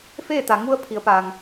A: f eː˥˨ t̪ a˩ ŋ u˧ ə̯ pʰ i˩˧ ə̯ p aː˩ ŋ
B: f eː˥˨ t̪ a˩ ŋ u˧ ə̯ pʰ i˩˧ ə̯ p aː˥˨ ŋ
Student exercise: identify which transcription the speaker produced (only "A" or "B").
A